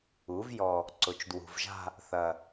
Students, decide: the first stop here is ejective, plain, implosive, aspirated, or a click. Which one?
click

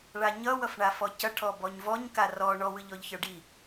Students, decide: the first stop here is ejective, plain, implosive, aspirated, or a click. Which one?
plain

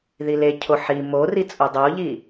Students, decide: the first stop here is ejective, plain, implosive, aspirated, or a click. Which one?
aspirated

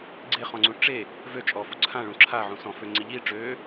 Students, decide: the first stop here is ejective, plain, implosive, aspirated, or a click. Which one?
click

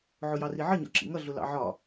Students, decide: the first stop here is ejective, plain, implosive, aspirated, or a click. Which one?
click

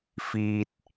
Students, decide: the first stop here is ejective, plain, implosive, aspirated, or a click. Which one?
plain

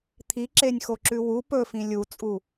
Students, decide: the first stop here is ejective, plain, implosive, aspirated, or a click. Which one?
aspirated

